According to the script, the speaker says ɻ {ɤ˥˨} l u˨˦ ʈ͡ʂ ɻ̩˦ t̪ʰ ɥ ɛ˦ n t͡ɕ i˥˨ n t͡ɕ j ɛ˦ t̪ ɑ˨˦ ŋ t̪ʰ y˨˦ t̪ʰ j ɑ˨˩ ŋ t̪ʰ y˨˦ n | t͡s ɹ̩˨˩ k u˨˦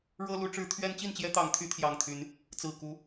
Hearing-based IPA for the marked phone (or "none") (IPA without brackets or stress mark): ɤ˦